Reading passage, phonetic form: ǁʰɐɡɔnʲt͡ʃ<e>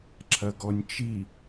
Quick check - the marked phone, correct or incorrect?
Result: incorrect